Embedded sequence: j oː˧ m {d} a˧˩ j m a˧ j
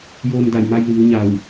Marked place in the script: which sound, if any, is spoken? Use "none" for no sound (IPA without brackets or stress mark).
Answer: d